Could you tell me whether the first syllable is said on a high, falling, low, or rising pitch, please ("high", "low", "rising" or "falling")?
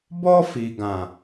high